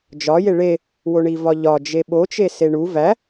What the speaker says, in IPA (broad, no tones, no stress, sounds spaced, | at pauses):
d͡ʒ ɒ j e ɭ e | w o ɳ i v ɒ ʎ ɒ d͡ʒ e ɓ o t͡ʃ e s e ɳ u v æ